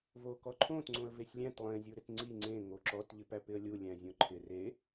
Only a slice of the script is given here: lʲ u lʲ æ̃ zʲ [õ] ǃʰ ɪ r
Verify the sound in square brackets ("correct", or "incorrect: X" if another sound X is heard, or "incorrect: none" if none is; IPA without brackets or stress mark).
correct